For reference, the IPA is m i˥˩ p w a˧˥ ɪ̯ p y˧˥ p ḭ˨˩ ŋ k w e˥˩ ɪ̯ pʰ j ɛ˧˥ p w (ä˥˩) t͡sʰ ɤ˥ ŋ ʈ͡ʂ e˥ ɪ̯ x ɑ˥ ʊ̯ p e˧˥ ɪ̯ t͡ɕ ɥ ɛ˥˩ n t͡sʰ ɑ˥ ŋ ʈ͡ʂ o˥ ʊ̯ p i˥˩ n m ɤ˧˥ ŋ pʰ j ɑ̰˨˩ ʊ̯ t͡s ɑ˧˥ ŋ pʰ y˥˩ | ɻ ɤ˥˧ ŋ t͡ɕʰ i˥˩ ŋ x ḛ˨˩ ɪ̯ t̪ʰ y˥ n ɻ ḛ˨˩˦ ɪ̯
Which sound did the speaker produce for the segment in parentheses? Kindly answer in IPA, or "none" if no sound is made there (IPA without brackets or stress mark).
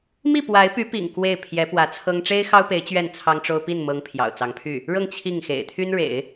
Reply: ä˧˥